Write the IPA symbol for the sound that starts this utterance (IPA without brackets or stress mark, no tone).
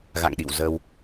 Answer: ɣ